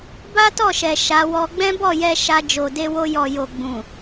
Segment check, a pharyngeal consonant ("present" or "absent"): absent